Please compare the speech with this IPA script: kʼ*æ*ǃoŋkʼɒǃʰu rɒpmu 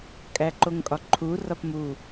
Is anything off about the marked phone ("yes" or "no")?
no